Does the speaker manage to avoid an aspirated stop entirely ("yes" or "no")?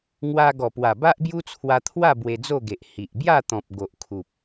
no